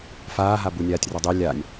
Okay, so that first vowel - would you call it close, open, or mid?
open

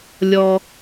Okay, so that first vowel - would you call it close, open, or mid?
mid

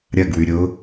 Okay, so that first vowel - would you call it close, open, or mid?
open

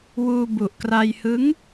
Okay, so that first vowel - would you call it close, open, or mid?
close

